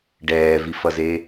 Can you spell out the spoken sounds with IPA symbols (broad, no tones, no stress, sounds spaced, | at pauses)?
ɖ ɛː v i f ʌ z e